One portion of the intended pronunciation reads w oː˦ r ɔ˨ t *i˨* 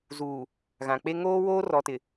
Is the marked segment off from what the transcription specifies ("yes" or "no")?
yes